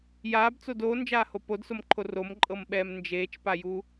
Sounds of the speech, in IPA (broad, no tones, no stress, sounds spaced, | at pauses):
j aː b t͡s o d oː n d͡ʒ aː h o p o d s o m ǃʰ o r o m ǃʼ ɤ m ɓ ɛː m n d͡ʒ eː t͡ʃ p a j u